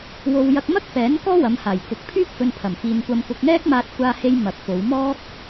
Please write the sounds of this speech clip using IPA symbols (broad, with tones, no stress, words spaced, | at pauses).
wo˧wjɐ˧k̚ mɐ˥k̚fɛː˨˥n kɔː˥wɐ˨˧mhaː˨˩jkʊ˨k̚ pʰyː˥p̚fɵ˧npʰɐ˨˩mfiː˨n kʷɐ˧mkʊ˧k̚ŋɛː˥k̚ maː˧t̚kʷaː˧he˧j mɐ˨˥k̚ fo˨˧wmɔː˥k̚